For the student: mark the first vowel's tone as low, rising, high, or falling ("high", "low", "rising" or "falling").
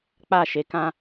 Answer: falling